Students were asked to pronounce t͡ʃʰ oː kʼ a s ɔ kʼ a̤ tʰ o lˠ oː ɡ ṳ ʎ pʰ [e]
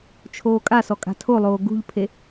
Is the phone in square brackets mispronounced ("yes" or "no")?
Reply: no